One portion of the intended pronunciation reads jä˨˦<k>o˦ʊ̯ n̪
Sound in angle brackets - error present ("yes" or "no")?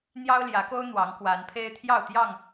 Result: no